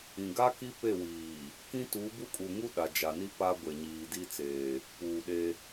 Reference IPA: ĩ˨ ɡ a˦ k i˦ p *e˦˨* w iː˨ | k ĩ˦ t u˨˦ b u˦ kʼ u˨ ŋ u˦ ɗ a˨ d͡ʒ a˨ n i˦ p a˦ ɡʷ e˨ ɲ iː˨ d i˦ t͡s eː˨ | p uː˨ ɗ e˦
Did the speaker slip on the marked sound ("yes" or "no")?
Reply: no